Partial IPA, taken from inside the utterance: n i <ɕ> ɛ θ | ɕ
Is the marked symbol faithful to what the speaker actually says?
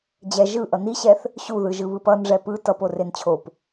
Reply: yes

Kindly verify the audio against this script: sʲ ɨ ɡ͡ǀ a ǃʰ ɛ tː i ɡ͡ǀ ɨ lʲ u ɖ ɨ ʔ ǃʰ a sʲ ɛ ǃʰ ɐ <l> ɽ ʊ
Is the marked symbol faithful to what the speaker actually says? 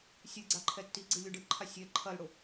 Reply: yes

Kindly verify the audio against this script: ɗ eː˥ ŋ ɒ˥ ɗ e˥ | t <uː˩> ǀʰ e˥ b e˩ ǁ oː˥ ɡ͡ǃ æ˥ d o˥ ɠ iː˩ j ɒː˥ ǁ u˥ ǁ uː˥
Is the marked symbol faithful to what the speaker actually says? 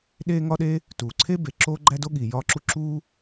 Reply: yes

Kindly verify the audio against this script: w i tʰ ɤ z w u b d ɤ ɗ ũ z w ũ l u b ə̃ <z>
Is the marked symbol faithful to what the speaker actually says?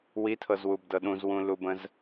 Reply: yes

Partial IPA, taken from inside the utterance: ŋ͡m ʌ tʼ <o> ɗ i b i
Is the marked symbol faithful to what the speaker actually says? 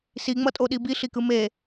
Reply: yes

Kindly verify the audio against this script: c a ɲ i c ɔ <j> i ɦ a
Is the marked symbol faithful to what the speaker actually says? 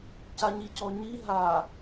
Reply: no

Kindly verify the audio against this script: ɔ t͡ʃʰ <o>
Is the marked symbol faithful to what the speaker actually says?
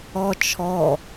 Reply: no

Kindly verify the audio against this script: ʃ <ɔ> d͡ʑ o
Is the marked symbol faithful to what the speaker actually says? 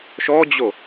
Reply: yes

